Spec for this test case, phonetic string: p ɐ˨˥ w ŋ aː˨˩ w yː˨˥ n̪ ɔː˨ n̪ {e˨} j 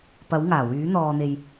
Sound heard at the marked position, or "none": e˨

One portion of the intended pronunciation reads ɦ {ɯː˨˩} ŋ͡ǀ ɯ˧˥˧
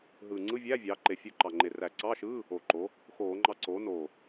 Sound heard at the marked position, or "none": ɯː˨˩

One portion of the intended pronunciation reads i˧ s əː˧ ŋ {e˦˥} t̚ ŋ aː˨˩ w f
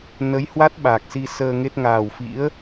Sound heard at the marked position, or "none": e˦˥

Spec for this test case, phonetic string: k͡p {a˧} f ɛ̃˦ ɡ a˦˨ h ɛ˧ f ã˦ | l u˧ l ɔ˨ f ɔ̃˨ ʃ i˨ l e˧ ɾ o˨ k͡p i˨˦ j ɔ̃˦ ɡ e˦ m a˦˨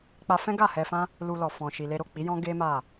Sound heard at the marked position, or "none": a˧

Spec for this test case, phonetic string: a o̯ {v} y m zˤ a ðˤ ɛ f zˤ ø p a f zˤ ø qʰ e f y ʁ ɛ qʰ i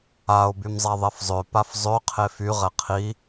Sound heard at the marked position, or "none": b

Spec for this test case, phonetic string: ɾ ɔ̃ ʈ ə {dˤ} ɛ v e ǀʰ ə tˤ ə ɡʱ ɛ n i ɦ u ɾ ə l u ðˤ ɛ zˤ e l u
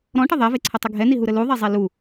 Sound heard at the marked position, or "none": ðˤ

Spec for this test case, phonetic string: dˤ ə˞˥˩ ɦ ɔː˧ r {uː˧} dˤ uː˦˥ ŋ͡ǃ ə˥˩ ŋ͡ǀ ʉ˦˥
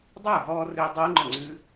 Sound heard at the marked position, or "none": ʏː˧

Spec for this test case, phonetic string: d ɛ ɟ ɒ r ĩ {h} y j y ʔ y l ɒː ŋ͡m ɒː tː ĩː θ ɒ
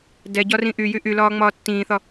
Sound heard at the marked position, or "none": ʔ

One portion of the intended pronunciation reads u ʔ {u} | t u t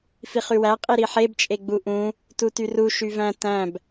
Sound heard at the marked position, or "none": ũ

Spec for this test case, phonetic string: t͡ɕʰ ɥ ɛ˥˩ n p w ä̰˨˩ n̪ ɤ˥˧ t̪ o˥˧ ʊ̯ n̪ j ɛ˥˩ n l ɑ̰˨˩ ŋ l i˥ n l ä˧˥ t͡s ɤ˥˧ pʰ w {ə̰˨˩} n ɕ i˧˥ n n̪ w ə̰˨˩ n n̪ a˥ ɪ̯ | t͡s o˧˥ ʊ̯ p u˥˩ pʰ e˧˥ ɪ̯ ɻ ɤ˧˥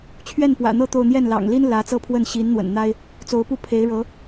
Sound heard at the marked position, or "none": ə˥˩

